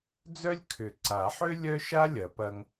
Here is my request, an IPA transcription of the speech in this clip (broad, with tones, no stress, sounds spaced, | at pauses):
d͡z œ˥ lʲ kʰ ʏ˨˩˦ ǀ a˨˩˦ ħ ø˥ lʲ œ˥ ʃ a˥ lʲ ɐ˨˩˦ p ɐ˧ ŋ